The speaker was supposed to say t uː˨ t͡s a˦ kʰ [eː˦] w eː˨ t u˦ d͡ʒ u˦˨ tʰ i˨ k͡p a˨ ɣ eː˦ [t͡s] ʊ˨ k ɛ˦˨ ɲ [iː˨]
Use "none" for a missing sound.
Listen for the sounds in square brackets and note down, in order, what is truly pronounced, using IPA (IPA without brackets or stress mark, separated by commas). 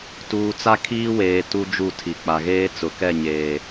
iː˦, t͡s, eː˨